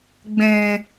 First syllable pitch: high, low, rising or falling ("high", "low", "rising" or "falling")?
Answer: low